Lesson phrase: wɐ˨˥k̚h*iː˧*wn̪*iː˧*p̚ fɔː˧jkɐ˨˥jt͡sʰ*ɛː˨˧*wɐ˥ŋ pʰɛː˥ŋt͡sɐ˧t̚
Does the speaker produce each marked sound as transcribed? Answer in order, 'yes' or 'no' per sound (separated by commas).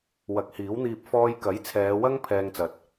no, yes, yes